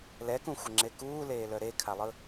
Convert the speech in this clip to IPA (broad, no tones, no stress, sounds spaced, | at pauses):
l ɛ k ũ xʷ ə ŋ͡ǁ e k uː l eː l œ ɾ e kʰ a lˠ ɯ